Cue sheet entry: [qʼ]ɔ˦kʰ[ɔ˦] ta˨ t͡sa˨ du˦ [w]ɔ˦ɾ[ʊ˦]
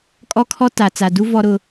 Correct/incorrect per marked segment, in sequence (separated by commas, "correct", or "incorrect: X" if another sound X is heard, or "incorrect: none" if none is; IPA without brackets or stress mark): incorrect: kʼ, correct, incorrect: v, correct